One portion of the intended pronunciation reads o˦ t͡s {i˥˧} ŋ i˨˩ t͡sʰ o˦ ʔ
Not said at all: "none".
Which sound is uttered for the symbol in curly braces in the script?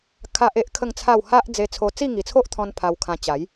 i˥˧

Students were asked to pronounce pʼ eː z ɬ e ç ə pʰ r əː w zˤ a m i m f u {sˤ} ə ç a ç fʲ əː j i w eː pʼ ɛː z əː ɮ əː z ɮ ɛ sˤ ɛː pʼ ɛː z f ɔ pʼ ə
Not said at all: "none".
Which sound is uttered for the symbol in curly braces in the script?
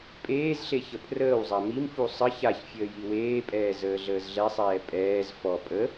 sˤ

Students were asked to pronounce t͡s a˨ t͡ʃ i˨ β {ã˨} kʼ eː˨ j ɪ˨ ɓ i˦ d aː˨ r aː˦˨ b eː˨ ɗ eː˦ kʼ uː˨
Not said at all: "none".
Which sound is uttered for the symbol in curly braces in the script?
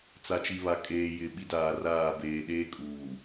a˨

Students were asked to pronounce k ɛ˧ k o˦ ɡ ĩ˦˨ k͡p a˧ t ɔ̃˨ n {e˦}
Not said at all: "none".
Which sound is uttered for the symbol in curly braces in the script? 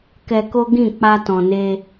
e˧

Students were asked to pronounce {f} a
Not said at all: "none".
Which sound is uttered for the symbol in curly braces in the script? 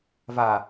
v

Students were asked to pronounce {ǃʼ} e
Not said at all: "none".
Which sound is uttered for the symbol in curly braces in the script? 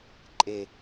ǃʼ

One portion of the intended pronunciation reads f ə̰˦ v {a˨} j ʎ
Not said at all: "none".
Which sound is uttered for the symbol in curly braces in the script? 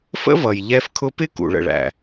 ʌ˨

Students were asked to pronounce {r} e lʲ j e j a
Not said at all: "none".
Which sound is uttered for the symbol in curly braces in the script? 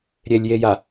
ɾʲ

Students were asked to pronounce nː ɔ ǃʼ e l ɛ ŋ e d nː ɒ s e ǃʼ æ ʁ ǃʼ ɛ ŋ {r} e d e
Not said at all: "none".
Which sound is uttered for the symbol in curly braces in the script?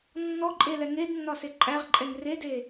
r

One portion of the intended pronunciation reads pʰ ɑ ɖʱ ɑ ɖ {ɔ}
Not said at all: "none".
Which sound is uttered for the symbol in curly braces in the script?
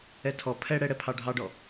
ɔ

